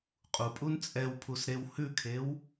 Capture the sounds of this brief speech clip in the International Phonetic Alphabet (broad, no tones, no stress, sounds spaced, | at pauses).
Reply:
qʼ u pʼ u n t͡sʼ ɛ w pʰ u s ɾ e w h ʉ kʰ e w